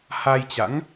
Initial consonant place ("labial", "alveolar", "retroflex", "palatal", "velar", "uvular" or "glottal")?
glottal